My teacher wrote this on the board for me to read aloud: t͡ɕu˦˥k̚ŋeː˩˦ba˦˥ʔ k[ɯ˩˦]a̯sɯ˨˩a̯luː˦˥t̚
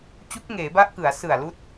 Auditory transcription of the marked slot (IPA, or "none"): ɯ˩˦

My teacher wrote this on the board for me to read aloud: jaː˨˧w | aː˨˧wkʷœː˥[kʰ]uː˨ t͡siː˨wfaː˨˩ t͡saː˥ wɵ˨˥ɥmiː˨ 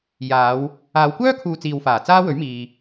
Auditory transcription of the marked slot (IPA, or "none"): kʰ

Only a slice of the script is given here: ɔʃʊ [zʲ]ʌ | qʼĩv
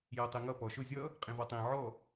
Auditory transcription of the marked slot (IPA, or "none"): zʲ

